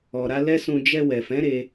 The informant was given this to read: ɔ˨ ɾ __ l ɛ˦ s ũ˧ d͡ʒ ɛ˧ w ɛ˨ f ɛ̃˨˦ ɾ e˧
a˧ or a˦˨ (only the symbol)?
a˧